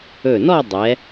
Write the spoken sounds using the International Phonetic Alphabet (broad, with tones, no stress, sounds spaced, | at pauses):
ɵ˧˩ n ɔ˥˧ dˤ ɛ˩˧